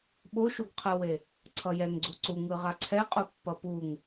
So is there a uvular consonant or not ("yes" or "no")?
yes